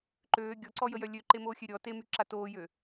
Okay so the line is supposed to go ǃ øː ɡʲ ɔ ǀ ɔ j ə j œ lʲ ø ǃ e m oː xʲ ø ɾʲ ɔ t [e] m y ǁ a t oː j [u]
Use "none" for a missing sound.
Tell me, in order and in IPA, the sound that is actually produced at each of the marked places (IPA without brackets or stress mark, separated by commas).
e, ø